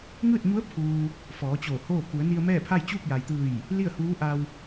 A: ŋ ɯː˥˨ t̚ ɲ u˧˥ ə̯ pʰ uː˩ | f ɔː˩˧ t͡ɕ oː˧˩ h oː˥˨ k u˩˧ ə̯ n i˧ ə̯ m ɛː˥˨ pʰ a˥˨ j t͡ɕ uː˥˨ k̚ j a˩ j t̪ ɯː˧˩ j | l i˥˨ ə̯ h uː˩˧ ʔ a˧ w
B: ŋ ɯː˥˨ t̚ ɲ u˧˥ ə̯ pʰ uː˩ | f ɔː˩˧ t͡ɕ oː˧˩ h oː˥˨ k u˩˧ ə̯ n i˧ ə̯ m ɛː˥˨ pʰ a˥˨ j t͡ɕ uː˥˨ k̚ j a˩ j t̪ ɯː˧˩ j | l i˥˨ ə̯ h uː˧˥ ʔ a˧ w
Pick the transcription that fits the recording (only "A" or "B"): B